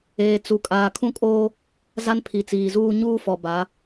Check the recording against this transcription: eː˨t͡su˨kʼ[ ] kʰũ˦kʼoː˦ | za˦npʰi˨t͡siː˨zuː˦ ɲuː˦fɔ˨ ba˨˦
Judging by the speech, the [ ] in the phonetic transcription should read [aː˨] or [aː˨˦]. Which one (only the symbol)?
aː˨